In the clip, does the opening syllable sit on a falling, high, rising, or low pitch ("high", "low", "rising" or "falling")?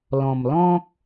low